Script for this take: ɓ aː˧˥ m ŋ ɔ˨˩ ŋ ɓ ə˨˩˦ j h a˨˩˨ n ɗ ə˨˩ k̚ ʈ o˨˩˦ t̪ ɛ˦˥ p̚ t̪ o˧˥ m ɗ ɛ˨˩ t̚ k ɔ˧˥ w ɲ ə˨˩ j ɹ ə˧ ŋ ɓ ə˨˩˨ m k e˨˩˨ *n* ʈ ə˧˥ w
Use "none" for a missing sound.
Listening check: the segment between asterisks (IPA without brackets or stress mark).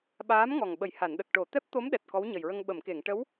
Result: ŋ